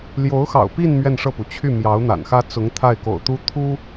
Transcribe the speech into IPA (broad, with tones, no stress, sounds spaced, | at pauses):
l j o˧˥ ʊ̯ x ɑ̰˨˩ ʊ̯ p i˥˧ n m ɥ ɛ˥˧ n ʂ ɤ˥˩ p u˩ t͡ɕʰ y˥˩ m j ɑ˧˥ ʊ̯ n̪ a̰˨˩ n x ä˥ t͡s ʊ˧˥ ŋ t̪ʰ a˥˩ ɪ̯ k o̰˨˩ ʊ̯ t̪ u˥ t̪ʰ u˥